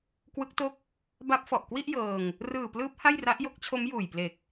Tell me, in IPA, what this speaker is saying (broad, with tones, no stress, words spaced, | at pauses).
kwɯ˦˥k̚to˥˩k̚ | ba˦˥p̚fɔ˨˩ʔ kwi˥˩ʔjɤː˧ŋ | rɯː˨˩plɯː˦˥p̚ ha˥˩jra˦˥ʔ jo˦˥k̚t͡ɕʰo˦˥mjuː˨˩jple˨˩k̚